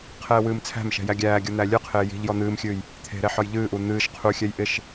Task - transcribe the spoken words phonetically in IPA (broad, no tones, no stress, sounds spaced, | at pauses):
qʰ ɛː w ɨː m t͡sʰ æ̤ m ʃ ɛ̤ j æ ɡʲ æː ɡʲ u n̪ æ lʲ ɨ qʰ ɪː j i̤ ʎ j ɔ n̪ ɨː m xʲ ɨː j | t̪ʰ e̤ ɾ ɛ ħ ɒ j ʎ ɨː ʔ u n̪ ɨː ʃ qʰ u xʲ ɛ j ʔ ɪ ʃ